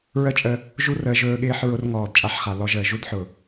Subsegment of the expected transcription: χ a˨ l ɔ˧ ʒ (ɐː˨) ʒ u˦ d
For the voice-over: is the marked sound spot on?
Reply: no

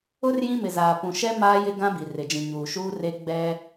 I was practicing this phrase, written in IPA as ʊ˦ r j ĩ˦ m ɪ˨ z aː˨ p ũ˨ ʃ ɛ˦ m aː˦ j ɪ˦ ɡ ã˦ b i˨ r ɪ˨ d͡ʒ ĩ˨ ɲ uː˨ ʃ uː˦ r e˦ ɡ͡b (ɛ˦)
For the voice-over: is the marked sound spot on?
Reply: yes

